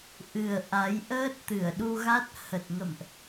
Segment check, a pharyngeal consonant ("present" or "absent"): absent